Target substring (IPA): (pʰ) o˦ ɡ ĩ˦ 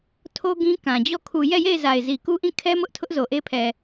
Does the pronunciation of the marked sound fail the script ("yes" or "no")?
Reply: yes